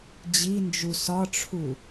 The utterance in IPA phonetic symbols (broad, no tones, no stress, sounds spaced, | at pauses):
d͡ʑ i n d͡ʒ u s ɒ ʈ͡ʂʰ u